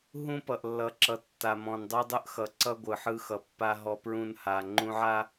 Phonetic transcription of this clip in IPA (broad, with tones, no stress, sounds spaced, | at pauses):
ɦ ũ˦ p ʌ˨ ʔ lː ʌ˨ ǁ ʌ˨˦ tː a˨ m ɔ̃˨ n dˤ u˦ dˤ ɯ˦ ʔ x ʌ˨ ǀ ʌ˦ ɡʷ ɯ˨ ħ ɯ˦ x ʌ˨ pː a˦ ɦ ɔ˦ p ɹ ũ˦ n h a˨ ŋ͡ǃ ũ˦ ʕ a˦